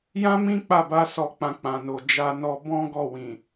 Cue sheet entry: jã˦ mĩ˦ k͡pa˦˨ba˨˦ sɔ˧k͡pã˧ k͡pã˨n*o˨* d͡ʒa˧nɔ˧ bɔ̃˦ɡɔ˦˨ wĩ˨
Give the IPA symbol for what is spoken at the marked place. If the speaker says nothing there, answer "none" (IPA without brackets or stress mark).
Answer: o˨